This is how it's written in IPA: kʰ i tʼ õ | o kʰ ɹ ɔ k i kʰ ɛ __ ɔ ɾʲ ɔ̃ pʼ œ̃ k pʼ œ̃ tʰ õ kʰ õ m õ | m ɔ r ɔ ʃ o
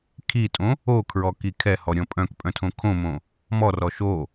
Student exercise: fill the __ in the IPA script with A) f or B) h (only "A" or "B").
B